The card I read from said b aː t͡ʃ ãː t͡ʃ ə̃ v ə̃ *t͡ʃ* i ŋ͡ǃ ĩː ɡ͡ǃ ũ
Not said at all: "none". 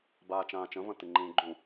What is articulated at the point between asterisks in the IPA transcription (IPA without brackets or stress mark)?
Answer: t